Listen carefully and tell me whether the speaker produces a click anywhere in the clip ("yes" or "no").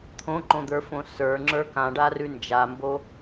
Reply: yes